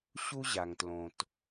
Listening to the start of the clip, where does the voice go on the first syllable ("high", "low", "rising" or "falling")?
high